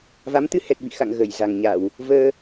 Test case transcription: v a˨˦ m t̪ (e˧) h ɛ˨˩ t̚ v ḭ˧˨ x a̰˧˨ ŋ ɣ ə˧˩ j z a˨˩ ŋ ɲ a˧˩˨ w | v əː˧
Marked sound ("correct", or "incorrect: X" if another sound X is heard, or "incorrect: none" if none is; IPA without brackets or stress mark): incorrect: ɨ˧